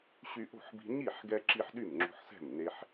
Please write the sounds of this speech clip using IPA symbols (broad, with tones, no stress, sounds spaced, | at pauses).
ɕ y˧ ʔ o̤˥˩ ħ b i̤˧ ɲ i˥˩ ħ ɡ ɛ˧ ǁ i˧ ħ ɗ y˥˩ m ŋ͡ǁ o̤˧ ħ s ɛ̤˥˩ m n e˧ ħ